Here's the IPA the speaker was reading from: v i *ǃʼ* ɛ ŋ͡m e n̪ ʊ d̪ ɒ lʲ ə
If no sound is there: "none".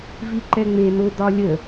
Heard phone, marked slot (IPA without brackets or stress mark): ǃ